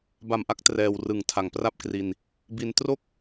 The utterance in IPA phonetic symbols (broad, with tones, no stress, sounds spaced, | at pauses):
b a˨˩ m ʔ a˥˩ k̚ t r ɛː˧ w r ɯ˨˩ ŋ tʰ a˩˦ ŋ p r a˥˩ p̚ k r i˧ n | b i˧ n t r o˥˩ k̚